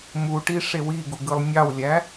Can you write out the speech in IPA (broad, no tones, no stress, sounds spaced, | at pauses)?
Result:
m u ʈ i ʂ e w i ɡ u ɡ ɯ lˠ nʲ ɑ w lʲ æ